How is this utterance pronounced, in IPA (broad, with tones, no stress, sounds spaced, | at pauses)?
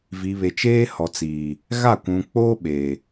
v i˨ β e˨ t͡ʃ eː˦ h ɔ˨ t͡s iː˨ | ɣ a˦˨ kʷ ũ˨ k͡p oː˦ ɓ eː˨